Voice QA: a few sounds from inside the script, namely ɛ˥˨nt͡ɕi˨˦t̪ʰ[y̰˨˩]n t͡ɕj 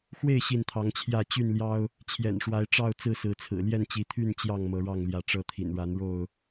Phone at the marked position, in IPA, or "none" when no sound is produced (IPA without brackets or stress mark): y˥˨